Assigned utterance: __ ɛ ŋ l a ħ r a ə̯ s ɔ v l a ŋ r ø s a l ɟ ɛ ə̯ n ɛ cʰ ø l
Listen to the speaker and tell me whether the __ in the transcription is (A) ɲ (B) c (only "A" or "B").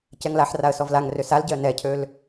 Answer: B